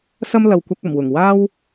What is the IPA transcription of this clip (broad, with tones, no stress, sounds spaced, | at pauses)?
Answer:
s ɐ˥ m l ɐ˨ w kʷ ɐ˧ k̚ ɐ˨˩ m w ʊ˨˩ ŋ w aː˥ w